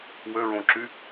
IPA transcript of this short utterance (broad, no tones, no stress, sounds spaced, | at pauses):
w ø ɹ õ ǁ y